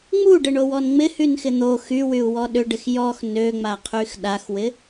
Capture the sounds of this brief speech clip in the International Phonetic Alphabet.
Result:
ŋ͡m u ɖ ɪ ɳ o w ɔ n ŋ͡m ɪ h y n x ɪ n̪ o x y w y u̯ w ɔ ɗ ʏ ɖ ɪ x j ɔ x n ø ŋ͡m a qʰ y x ɗ a x w ɪ

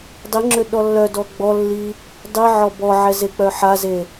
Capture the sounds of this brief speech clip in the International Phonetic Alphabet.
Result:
dˤ i ŋ͡ǁ ø ɗ ɔ lː œ d ɔ ɡ͡b ɔ lː i | dˤ i ʕ ɔ b ɔ ʕ ɛ z e k͡p œ ħ a z e

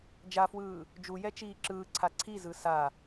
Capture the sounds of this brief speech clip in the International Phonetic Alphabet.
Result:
d͡ʒ a f w ɯː | d͡ʒ u j ɛ t͡ʃ iː ǁ ɯː ǀʰ a ǀʰ i z ɯ s a

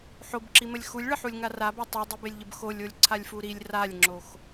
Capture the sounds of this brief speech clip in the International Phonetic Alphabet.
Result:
ħ o b ǁ i m ə lʲ x u lʲ ɭ ə ħ u lʲ ŋ a r a b a tˤ u dˤ i b e lʲ ʎ ə b x o lʲ o lʲ ǀʰ a lʲ f u ɾ i lʲ r a lʲ ŋ͡ǁ o x

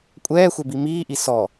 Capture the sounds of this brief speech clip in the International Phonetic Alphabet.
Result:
kʷʼ ɛː xʷ ɛ b i m iː ʔ i s ɔ

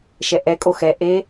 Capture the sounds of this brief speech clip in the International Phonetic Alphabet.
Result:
ʃ ɛ ʔ ɛ kʼ o x ɛ ʔ e

